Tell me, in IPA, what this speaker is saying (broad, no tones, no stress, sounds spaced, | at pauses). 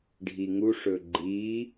ɖʱ i ŋ u ʂ ɵ ɡ͡ǃ i